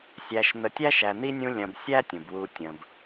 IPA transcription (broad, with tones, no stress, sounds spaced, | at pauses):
sʲ æ˨ ʃ n̪ ə˨ tʲ æ˦ ʃ æ˨ n̪ i˥ nʲ ũ˦ lʲ ɐ̃˨ b sʲ æ˦ tʲ ũ˩ b w u˨ tʲ ə̃˨ b